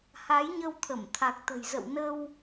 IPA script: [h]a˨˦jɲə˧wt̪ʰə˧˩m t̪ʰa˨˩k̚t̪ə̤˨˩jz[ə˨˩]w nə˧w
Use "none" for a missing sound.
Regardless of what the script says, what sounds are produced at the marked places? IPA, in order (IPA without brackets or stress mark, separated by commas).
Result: h, ə̰˧˨